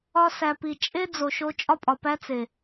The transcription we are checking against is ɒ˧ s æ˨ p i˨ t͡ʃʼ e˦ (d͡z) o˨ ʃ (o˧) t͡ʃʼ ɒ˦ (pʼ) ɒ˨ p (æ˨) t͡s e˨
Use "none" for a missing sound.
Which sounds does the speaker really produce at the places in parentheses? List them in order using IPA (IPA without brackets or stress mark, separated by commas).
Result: d͡z, o˧, pʼ, æ˦